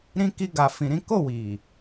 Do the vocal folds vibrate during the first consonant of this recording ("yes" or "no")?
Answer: yes